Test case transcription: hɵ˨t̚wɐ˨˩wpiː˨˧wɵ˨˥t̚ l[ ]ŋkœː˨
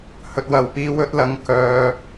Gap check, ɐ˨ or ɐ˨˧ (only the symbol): ɐ˨